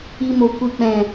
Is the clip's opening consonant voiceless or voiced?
voiced